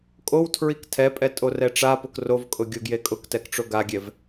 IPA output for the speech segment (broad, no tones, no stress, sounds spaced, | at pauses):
kʼ o w tʰ ɹ i k tʰ ɛ pʼ ɛ tʼ o r ɛ ʈ͡ʂ a p ʊ k r o v kʼ ʊ ɡʲ o ɡ j e kʼ ʊ k t ɛ k ʈ͡ʂ o ɡ a ɡʲ ɛ v